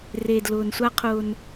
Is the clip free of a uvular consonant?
no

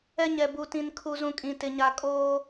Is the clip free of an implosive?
yes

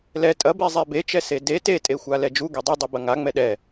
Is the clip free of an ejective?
no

